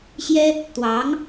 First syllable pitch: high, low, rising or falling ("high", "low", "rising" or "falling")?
high